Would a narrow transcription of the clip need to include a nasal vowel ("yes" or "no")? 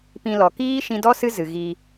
yes